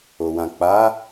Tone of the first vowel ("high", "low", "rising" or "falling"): low